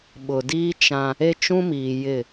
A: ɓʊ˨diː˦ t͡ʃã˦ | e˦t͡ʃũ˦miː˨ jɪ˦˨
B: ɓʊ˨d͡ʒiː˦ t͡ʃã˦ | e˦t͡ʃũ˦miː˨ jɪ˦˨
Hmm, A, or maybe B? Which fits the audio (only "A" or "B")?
A